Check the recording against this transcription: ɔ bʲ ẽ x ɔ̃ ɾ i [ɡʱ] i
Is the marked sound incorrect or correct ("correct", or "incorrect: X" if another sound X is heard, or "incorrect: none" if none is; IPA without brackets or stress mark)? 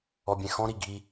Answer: correct